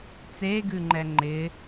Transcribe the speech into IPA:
t͡seɡʉŋ͡ǃɛ ŋ͡ǃɪ

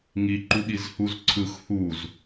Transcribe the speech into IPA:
ŋi ǃuɠizhuz ǀʰɯx huz

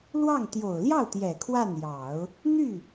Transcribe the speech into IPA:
lwɑ˥˩ŋ t̪jo˨˩ʊ̯ljɑ˥˩ʊ̯t̪jɛ˨˩ kʰwa˥˩njɑ˨˩˦ʊ̯ | n̪y˥˩

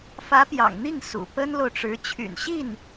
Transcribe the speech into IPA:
fä˧˥pjɑ̰˨˩ŋn̪i˥˩ŋ sṵ˨˩ pə˥nlo˨ʊ̯ʈ͡ʂɻ̩˧˥ t͡ɕʰy̰˨˩nɕi˥˩n

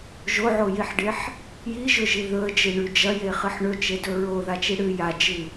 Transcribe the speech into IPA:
ʒoʕojiħɖeħ | jiʒɵʒi ðɵə̯d͡ʒɨɳʉ d͡ʒɐjeχɨħ ɳɵt͡ʃedɵ ɹoðat͡ʃi ɽɨ jad͡ʒɨ

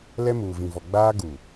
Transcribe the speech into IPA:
lɛ˦muː˨vĩ˨vɔ˨ ɡ͡baː˦ ɡu˨

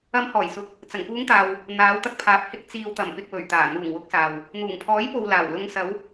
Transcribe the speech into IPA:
ɐ˨˧mhɔː˨˩jsʊ˨˥k̚ | t͡sɐ˨˩ŋpuː˨˧ŋt̪aː˨w | n̪aː˨˧wt̪ɐ˧k̚pʰaː˨p̚hɪ˧k̚ t͡siː˨wt̪ɐ˨˩mpɪ˨k̚ wɵ˨˩ɥt̪aː˨˩ n̪uː˨˩ŋwʊ˨˥k̚ saː˨w | n̪uː˨˩ŋpʰɔː˨˥jpo˨w laː˨˩w lʊ˨˧ŋsɐ˨˧w

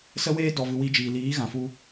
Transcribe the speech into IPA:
sə˦weː˦ dɔ˨vɨ˨ wi˧d͡ʒiː˨ liː˨˦ ɣã˨fu˧

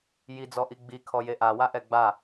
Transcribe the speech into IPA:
jid͡zɔʔi ɡ͡bikʰɔje ʔawaʔɛ ɡ͡ba

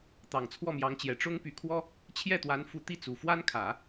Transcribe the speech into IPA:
t̪ɑ˨˩ŋt͡sʰwɔ˥˩mjɑ˧˥ŋt͡ɕjɛ˨˩ ʈ͡ʂʊ˥ŋpy˧˥kʰwɔ˥ | t͡ɕʰjɛ˥˩t̪wa˧˥n fu˧˥t̪i˥˩t͡su˨˩ fwa˥nkʰä˨˩˦

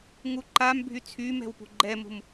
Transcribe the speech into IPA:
ŋuǃambʱy t͡sʰymɛ̤w pṳɡ͡ǃɛmṳm

